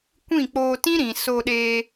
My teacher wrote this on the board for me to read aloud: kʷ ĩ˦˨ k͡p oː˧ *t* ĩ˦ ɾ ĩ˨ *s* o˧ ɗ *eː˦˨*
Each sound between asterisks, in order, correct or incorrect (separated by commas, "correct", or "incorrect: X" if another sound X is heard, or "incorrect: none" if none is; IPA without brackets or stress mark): correct, correct, incorrect: eː˧